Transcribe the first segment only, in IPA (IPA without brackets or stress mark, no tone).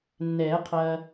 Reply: nː